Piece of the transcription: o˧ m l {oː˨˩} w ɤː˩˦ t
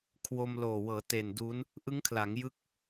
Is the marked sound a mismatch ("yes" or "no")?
no